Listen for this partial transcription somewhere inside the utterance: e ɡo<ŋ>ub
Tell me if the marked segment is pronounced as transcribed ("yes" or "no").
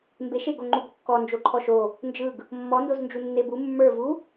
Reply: no